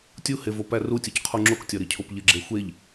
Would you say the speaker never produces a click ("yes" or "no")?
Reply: no